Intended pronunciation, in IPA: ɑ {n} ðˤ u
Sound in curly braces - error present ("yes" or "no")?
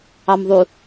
yes